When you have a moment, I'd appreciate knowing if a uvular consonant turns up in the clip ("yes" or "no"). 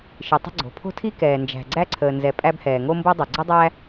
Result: no